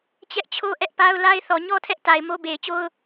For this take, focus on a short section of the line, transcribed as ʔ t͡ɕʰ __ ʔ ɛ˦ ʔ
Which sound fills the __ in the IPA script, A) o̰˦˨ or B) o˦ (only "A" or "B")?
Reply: B